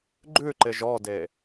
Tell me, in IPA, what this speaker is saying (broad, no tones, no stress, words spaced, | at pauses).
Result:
ɡ͡ǃʉǃɪʒ ɔde